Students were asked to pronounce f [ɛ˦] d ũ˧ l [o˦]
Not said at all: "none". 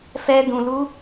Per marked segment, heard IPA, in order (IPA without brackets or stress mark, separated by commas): ɛ˦, u˦